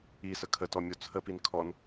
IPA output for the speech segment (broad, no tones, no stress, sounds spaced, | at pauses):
i s ə kʰ ə t ɔ mʲ o t͡sʰ ə p i n kʰ ɔ n